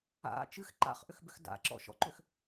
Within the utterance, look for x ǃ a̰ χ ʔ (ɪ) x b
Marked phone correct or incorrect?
incorrect